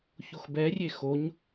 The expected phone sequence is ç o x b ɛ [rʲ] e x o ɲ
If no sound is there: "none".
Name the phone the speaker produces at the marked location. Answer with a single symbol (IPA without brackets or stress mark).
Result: rʲ